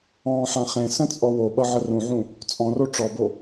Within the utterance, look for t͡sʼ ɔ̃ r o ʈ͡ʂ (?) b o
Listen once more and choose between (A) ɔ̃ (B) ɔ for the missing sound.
B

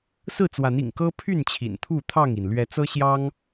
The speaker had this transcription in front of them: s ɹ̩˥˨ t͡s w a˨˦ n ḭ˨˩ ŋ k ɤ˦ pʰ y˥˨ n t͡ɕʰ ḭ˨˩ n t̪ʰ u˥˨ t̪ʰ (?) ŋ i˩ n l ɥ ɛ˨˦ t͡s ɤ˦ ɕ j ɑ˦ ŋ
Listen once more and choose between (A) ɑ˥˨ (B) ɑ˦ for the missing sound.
A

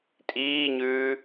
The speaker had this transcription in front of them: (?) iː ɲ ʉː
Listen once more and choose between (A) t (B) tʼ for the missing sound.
B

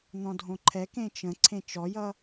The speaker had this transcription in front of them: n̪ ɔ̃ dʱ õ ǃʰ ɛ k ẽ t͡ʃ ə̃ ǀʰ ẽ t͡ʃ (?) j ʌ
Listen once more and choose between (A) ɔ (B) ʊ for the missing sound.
A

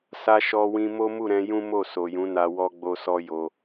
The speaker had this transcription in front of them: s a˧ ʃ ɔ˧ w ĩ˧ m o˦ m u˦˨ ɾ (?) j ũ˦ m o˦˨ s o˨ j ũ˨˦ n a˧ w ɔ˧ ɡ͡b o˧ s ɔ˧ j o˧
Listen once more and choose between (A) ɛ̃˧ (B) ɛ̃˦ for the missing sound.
A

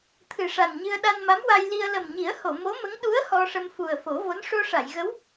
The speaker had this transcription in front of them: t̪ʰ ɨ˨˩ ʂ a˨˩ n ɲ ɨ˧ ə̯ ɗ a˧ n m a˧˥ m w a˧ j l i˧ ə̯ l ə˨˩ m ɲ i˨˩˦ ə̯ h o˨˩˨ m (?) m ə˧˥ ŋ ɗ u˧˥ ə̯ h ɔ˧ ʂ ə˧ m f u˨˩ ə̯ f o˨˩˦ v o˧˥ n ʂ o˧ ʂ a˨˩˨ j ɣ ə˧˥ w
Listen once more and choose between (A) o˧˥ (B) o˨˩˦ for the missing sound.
A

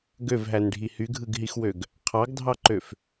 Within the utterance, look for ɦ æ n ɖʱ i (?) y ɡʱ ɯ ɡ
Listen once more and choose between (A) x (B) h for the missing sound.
B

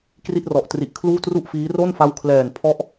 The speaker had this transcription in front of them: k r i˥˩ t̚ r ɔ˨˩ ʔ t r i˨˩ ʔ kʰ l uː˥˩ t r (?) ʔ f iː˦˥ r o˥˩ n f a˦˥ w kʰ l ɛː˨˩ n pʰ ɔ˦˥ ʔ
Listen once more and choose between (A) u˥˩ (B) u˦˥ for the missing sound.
A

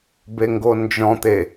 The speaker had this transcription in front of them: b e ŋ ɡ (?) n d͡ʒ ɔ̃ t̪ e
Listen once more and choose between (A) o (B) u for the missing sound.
A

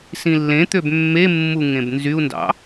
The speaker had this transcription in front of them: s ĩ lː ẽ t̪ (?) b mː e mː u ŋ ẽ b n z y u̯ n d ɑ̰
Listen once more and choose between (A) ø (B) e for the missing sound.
A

